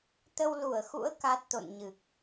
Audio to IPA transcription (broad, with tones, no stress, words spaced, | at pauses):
t̪ə˧wlu˧˩ə̯xṵ˧˥ə̯ ka˦˥t̚t̪o̰˧˨nɲɨ˨˩k̚